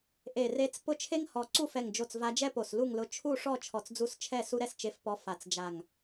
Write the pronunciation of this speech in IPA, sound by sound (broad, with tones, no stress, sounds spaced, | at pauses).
ʔ e˧˩ r e˧˥ t͡s p ʊ˥˨ t͡ʃʰ e˥ ŋ h ɔ˧˩ ǀ u˥˨ f ɛ˧˩ ŋ d͡ʒ o˧˩ t͡s v a˧˥ d͡ʒ ɛ˥ p o˧˩ s l u˥˨ ŋ l ʊ˧˥ t͡ʃʰ u˥˨ ʂ ɔ˥˨ t͡ʃʰ ɔ˧˩ t͡s d͡z u˧˥ s t͡ʃʰ ɛ˥˨ s u˥ ɾ ɛ˥ s t͡ʃ e˧˥ f p ɔ˧˥ f a˧˩ t͡s d͡ʒ a˧˩ ŋ